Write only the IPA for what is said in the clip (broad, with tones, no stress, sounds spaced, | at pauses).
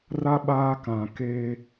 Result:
r a˦ ɓ aː˦ k ã˨ k eː˦